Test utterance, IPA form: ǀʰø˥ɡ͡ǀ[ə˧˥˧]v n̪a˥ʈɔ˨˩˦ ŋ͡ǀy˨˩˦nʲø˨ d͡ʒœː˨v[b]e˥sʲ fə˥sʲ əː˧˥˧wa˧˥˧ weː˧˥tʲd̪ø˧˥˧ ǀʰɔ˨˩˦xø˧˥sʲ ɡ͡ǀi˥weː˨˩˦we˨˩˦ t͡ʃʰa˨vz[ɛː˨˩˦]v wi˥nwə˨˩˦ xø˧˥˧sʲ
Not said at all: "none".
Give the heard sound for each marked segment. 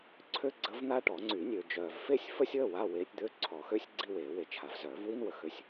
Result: ə˧˥, f, œː˨˩˦

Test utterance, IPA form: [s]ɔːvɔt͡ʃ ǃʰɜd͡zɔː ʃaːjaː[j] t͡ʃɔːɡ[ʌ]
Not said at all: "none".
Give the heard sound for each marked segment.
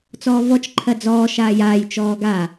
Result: t͡s, j, a

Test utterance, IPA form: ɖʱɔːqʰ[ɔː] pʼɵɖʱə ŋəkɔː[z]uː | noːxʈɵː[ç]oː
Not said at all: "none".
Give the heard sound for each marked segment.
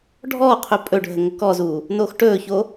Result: ɵː, z, ç

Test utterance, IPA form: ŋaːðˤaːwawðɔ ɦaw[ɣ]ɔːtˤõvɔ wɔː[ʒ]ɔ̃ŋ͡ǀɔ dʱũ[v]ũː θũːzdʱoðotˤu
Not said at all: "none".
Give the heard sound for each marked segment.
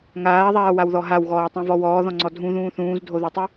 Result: ɣ, ð, ð

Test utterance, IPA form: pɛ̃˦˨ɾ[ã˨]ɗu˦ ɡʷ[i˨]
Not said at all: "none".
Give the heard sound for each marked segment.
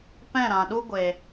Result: ã˨, e˨

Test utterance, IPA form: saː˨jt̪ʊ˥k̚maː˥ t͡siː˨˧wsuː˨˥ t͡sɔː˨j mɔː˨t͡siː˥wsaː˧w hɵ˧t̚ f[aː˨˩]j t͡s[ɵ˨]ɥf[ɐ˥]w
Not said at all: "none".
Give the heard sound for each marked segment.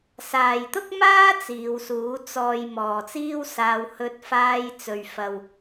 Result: aː˧, ɵ˨, ɐ˨

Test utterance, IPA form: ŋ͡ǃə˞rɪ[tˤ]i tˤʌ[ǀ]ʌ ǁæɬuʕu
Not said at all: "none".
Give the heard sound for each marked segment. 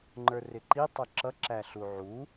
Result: ǃ, ǁ

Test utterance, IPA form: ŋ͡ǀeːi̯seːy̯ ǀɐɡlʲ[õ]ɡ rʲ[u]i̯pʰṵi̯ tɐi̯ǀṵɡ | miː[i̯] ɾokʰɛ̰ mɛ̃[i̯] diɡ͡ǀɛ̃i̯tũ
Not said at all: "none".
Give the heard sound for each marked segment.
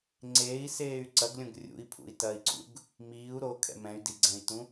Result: õ, ṵ, u̯, y̯

